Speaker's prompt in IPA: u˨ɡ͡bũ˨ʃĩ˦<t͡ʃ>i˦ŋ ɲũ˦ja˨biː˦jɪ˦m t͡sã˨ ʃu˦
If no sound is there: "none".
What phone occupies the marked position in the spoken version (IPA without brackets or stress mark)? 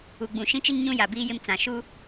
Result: t͡ʃ